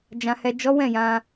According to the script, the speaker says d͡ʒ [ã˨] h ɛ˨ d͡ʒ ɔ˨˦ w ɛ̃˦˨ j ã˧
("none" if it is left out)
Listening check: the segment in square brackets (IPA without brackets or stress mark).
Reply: ã˨